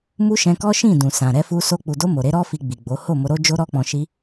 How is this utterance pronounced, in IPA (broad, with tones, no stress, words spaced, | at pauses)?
mu˦ʃɛ̃˧kɔ˦ʃĩ˦˨ dũ˨sã˨ ɾɛ˧fu˧so˧ k͡pu˨do˧ mo˨ɾe˨˦ɾɔ˦ fi˧ɡ͡bi˨ɡ͡bo˨˦ ho˦˨mo˧ɾo˦d͡ʒo˦ ɾɔ˧k͡pɔ̃˨ʃi˧